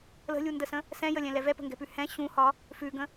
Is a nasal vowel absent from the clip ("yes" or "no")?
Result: no